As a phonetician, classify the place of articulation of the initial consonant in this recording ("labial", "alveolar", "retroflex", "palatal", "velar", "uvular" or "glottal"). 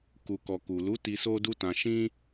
velar